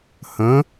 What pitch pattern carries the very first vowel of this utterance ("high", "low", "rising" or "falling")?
rising